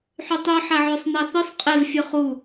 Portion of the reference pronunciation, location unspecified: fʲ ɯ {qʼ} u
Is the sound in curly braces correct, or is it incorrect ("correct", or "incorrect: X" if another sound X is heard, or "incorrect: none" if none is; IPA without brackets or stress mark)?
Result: incorrect: χ